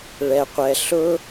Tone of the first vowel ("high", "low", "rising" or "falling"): low